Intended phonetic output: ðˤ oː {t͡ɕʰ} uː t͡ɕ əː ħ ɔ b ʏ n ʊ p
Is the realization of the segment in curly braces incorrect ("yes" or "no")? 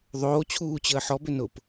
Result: no